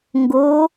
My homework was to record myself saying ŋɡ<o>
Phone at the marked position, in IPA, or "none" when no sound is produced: o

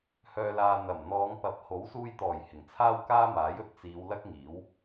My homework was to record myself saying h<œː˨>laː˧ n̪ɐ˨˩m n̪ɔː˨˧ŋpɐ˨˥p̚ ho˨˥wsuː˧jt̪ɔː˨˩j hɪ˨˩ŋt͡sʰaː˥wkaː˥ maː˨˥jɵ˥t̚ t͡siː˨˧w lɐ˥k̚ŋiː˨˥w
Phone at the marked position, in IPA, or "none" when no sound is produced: œː˧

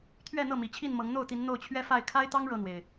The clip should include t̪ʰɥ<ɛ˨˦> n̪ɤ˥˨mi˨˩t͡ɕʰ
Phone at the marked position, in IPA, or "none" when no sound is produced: ɛ˥˨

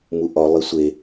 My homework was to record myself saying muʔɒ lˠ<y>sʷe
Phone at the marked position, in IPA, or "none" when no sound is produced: i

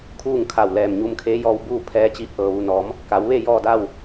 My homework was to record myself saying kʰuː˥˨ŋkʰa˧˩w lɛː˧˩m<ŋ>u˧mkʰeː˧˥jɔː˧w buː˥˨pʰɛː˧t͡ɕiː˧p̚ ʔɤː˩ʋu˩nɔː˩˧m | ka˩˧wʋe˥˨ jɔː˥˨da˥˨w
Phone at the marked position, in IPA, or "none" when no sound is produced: ɲ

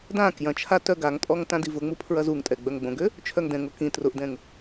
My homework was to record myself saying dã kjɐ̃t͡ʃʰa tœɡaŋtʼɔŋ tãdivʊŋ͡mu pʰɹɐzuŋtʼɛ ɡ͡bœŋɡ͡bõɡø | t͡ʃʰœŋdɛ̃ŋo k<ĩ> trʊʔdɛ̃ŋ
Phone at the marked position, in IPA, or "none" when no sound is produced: ĩ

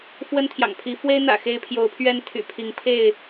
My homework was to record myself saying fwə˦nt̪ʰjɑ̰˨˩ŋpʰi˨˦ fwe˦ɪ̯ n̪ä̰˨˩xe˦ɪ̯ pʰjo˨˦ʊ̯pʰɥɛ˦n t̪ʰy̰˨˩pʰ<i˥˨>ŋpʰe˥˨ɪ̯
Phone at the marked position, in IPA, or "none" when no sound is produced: i˨˦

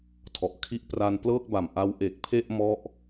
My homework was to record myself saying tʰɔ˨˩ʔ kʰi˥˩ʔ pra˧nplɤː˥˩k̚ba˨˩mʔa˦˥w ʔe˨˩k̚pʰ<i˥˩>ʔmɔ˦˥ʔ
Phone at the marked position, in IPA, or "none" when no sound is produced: e˥˩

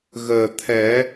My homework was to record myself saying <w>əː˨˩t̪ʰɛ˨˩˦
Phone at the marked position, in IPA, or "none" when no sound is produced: ɣ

